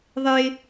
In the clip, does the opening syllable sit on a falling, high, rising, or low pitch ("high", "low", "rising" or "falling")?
high